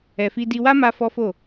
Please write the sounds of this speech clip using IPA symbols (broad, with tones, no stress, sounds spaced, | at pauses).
ɛ˨ f i˧ d i˧ w a˦ m a˦ f ɔ˦ f o˦˨